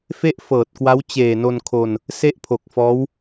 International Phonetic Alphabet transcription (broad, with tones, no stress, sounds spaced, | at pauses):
f e˥˩ ʔ f ɤː˨˩ t̚ k w a˦˥ w t͡ɕ eː˨˩ n o˧ n kʰ o˧ n | s e˥˩ ʔ pʰ o˨˩ k̚ f ɔː˦˥ w